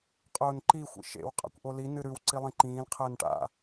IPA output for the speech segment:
qʼ ʊː n ǃ i xʷ ḭ ʃ ḛ w qʼ a̰ kʷ ʔ o l i n ɨ ɾ ʉ w ǀ i lˠ ĩ ǃ ĩː l qʰ əː n ʈ a̰

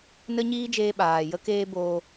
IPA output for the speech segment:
n ə˦ ɲ iː˦ d͡ʒ eː˧ ɓ aː˨ j ə˦ k eː˦ b oː˧

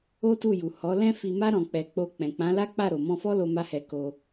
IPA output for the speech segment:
o˦ t u˦˨ j u˨ h ɔ˨˦ l ɛ̃˦ f i˧ m a˦ ɾ ɔ̃˧ k͡p ɛ˧ k͡p o˧ k͡p ɛ̃˨ k͡p ã˨˦ l a˦ k͡p a˦˨ ɾ o˨ m ɔ̃˧ f ɔ˦ l o˧ m a˦ h ɛ˧ k o˧

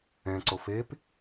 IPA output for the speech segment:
ɛ̃ ǀ o f e p

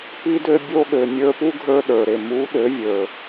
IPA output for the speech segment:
p i˧ d ø˧ bʲ o˧ ɠ ø˨ mʲ ə˞˧ p u˦ ɡʱ ə˞˧ ɗ ə˞˨ ɾ e˨ m u˨˦ ɗ ø˨˦ vʲ ə˞˨

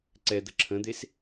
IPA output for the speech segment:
ǀ ɛ d̪ ə ǁʰ ə̃ d̪ e s

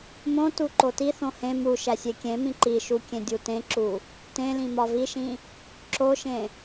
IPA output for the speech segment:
m õ t u ǃ o t i θ õ h ẽ m u ʃ æ sʲ e kʲ ẽ m ĩ ǃ i ʃ u kʲ ẽ dʲ u t ẽ ǁ u | t ẽ l ĩ m ɒ v i ʃ ĩ | ǁ o ʃ ẽ

